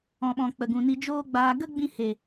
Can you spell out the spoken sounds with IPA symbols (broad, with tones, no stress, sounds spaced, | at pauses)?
ɔ̃˨ ɓ ɔ̃˨ k͡p ə˨ ɡ ũ˨ n i˧ d͡ʒ oː˦ ɡ͡b aː˧ ɡ ə˦ ɡ͡b ĩ˧ h e˨